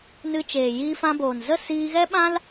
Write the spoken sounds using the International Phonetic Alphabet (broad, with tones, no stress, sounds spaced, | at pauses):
n ɨ˧ t͡ʃ eː˨ j iː˧ f ã˧ b oː˨ n z ə˦˨ s iː˧ ɣ ɛ˦ ɓ ã˦ l